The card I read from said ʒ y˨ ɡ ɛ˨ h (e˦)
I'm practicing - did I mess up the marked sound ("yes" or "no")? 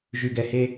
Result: no